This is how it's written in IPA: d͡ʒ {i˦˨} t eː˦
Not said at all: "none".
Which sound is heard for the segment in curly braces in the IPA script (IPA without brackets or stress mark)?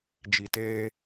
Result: i˨